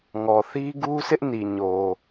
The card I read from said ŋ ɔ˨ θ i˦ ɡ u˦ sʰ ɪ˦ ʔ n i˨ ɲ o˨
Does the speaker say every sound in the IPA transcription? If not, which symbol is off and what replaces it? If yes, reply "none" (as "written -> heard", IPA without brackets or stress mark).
none